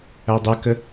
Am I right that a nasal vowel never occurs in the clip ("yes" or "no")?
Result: yes